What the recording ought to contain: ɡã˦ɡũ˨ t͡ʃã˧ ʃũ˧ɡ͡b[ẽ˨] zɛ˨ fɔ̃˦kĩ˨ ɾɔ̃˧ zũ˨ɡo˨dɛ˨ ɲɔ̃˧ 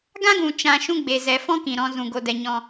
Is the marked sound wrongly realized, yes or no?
yes